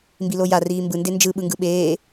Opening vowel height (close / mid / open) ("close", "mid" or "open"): close